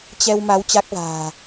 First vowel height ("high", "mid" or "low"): mid